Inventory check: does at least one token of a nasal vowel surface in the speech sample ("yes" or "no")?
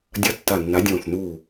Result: yes